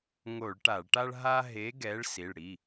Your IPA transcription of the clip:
ŋo˧˩˧ɭ ʈa˧˩˧ɭʈa˥ɭ ɦa˥ ɦe˨˦ɡɛ˨˦ɭ si˩˧˩ɭ ɽi˩˧˩

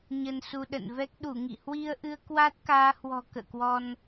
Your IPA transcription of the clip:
ɲə˧nsu˧ɗə̰˧˨nvɛ˦˥k̚ ɗu˧˩ŋḭ˧˨hwi˧ə̯ʔɨ˧ə̯ kwa˦˥t̚kaː˨˦hwɔ̤˨˩ kə̰ː˧˨kwɔ˧n

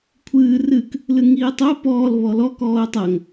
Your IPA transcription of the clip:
kʷʰɨː rɨk | lɨŋiːtˤo pɔːl βɔlɔ kɔːʊ̯tˤɐŋ

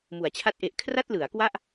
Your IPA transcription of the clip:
mu˩˦a̯t͡ɕʰa˥˩t̚ʔe˦˥ʔ kʰra˥˩t̚lɯ˩˦a̯kwa˥˩ʔ

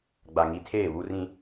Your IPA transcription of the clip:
ɡ͡ba˨ ŋi˨tʰeː˦˨ βu˦rĩ˦

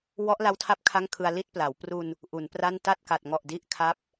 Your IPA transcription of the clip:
wɔ˦˥ʔla˦˥wtʰa˦˥p̚ kʰa˥˩ŋkʰɯ˧a̯ li˥˩t̚pla˩˦w pru˧n | ʔu˩˦npra˥˩n ta˥˩t̚ka˨˩t̚ŋɔ˨˩ʔ di˦˥ʔkʰa˦˥p̚

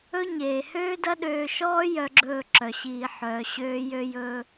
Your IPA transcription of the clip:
ɵ˦ɲeː˨ høː˦dɐ˦ɗøː˧ʃɔː˦ jœ˦ɡ͡ǁɵː˦˨ǁœ˨ɕiː˧ ħœː˨ ɕøː˦ jø˧jɵː˧

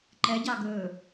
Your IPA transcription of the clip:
ǃɛɟɑ ɡɵː

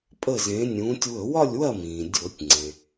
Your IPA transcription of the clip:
pʼə˥˨zẽ˨˥nʲũː˨˥tʲ wɵ˧˩˧wɒ˥˨lʲ wɐ˥˨ mĩː˩ dʲo˧˩˧tʲŋ͡ǀẽ˩

